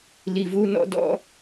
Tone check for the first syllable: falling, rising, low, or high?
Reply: low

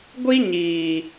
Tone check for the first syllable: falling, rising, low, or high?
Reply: high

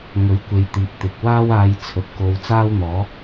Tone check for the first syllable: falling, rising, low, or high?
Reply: rising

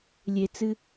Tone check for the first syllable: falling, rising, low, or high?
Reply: low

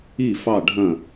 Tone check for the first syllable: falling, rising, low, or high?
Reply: falling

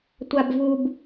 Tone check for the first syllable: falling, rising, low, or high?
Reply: low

